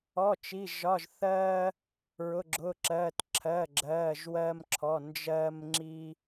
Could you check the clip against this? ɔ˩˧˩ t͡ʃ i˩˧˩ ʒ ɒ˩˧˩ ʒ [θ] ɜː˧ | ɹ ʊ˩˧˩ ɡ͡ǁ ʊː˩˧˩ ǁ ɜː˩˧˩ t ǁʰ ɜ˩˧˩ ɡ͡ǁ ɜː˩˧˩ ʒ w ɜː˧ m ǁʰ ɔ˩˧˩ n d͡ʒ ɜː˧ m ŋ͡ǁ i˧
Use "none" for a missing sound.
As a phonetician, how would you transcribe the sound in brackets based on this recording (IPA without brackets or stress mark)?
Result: θ